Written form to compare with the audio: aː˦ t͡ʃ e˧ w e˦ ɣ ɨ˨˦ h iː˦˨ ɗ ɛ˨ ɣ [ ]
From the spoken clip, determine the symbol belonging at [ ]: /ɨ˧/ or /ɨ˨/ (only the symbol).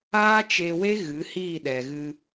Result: ɨ˧